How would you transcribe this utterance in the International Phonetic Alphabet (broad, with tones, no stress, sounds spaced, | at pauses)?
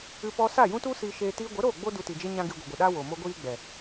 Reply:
ɨ˧ p ɔ˧ s a˦˨ j ũ˦ t u˦ s iː˦ ʃ eː˦ t iː˧ ɡʷ ə˨˦ ɾ oː˦˨ ɡ͡b o˦ d u˧ t i˨ d͡ʒ e˦ ɲ ã˦ ɡ i˧ ɡʷ i˨ ɡʷ ɨ˨ ɗ a˦ w o˨ m o˦ ɡʷ iː˦ ɡ͡b ɛ˨